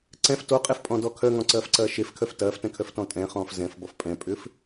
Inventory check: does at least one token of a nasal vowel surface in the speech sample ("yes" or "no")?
yes